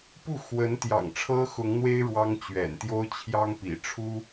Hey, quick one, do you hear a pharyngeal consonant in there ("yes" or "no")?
no